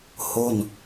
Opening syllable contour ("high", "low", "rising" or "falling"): falling